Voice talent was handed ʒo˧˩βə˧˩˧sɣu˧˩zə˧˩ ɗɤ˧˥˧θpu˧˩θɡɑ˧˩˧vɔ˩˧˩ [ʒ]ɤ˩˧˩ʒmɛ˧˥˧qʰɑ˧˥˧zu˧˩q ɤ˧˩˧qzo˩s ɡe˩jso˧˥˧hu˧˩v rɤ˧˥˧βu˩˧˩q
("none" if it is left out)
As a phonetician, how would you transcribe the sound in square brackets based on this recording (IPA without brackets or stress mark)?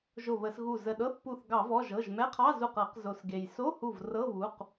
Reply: ʒ